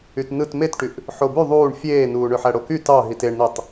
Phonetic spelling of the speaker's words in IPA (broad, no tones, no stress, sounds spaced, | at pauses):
y t n ɯ t m e t ʈ y ʔ | ħ o b y ðˤ uː ɳ fʲ eː n uː ɳ ø ħ æ ɽ o k y t ɑ ɦ i t e ɳ n i tˤ